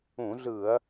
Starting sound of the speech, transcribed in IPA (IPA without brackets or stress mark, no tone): ũ